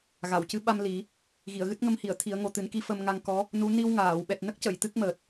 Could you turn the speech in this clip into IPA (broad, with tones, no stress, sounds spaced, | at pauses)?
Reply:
ɣ a˨˩˨ w c ɨ˧˥ ɓ a˧ m l i˨˩˦ | ɣ i˨˩˨ ə̯ ɣ ɨ˦˥ t̚ ŋ ə˧ m h i˨˩˨ ə̯ t̪ʰ i˨˩˦ ə̯ ŋ o˨˩ t̪ ɨ˨˩˦ n k i˧˥ f ə˧ m ŋ a˧ ŋ k ɔ˧˥ | n u˧˥ n i˧ w ŋ aː˨˩˨ w ɓ ɛ˨˩ t̚ n ə˦˥ k̚ c ə˨˩˨ j t̪ ɨ˦˥ k̚ m əː˨˩ t̚